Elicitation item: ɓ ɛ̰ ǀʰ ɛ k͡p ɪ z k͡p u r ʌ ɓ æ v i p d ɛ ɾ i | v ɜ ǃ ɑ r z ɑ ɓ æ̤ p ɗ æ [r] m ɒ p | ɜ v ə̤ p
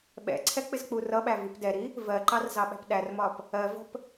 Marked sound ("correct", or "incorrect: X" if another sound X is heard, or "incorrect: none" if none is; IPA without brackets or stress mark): correct